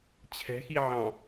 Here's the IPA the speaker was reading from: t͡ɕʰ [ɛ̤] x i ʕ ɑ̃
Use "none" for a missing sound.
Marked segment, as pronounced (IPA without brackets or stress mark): ɛ̤